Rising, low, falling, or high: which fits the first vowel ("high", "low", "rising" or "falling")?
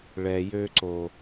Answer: low